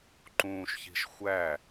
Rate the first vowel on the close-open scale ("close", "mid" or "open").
close